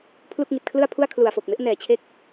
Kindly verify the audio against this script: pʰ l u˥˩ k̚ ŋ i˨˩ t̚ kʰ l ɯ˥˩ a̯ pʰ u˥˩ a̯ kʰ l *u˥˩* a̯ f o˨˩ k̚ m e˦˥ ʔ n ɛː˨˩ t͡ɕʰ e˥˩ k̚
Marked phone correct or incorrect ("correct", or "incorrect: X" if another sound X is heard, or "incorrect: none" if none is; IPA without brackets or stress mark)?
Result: incorrect: u˨˩